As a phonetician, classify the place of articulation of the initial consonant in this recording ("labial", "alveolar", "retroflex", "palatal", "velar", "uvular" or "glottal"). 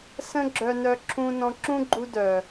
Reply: alveolar